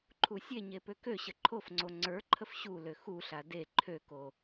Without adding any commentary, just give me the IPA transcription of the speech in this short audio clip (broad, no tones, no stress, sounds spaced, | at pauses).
ǃʰ u sʲ e ɲ e p ø k ø ɕ ə ǃʰ o f ŋ͡ǀ o ŋ͡ǀ ə˞ ǃʰ ə f ɕ u l ø x u ɬ a d e ǃʰ ø k o